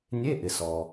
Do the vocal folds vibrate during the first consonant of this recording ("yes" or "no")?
yes